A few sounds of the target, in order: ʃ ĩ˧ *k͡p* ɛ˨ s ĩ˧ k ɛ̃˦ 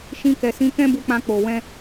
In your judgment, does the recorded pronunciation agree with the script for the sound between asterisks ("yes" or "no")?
no